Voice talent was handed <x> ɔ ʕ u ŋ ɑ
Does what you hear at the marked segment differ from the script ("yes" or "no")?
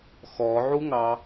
no